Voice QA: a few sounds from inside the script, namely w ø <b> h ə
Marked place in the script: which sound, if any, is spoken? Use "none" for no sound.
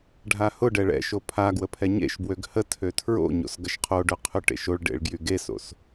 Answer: ɡ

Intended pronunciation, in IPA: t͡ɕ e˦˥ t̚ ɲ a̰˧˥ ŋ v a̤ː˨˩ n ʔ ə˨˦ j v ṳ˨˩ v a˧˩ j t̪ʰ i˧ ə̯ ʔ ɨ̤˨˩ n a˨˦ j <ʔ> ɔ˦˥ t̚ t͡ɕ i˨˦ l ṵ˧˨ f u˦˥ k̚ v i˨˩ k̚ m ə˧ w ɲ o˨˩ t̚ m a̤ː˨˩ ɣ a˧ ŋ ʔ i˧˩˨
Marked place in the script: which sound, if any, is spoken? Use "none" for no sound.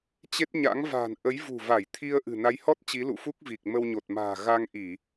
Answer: h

